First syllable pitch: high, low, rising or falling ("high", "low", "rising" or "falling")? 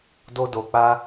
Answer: high